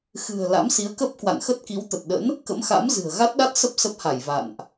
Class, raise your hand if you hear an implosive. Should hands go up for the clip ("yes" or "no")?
yes